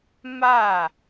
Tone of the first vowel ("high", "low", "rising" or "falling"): falling